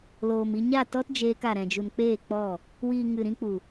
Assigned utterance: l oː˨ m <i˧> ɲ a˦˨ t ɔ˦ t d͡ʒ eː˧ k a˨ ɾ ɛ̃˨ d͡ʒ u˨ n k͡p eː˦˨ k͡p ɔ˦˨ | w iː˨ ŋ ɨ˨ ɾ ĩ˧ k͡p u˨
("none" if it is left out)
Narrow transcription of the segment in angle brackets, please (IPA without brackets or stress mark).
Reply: i˧